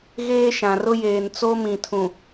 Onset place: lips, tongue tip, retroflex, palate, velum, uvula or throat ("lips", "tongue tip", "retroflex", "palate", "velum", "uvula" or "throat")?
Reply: velum